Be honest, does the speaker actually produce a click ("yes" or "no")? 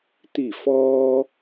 no